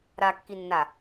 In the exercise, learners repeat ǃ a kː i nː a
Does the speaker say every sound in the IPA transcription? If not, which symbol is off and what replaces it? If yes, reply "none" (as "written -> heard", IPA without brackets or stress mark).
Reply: ǃ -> ɾ